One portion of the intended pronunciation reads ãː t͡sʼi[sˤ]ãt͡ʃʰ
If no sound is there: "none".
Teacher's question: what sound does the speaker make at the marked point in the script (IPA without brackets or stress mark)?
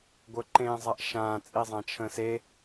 zˤ